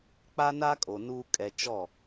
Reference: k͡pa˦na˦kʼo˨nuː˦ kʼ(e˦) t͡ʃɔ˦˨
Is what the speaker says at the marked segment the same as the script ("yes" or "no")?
no